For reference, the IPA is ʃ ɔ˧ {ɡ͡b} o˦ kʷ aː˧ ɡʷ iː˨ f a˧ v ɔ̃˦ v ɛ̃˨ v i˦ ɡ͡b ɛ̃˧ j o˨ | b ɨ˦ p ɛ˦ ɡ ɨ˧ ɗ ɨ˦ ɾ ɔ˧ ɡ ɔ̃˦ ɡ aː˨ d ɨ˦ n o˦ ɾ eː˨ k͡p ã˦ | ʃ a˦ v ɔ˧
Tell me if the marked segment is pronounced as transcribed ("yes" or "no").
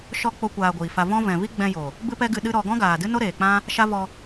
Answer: no